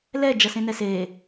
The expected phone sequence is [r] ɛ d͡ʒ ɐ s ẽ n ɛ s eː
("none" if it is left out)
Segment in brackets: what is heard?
l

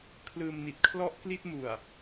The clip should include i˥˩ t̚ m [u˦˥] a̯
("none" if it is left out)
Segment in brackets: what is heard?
u˨˩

